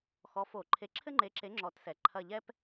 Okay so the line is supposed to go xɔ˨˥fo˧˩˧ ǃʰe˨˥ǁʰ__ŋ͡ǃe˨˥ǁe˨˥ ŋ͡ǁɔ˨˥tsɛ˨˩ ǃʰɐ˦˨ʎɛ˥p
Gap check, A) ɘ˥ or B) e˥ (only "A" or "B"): A